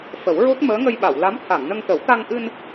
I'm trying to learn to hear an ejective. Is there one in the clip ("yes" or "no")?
no